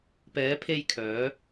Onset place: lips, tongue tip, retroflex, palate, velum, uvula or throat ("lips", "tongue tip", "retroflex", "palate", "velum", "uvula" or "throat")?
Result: lips